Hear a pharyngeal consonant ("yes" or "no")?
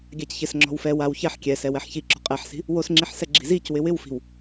yes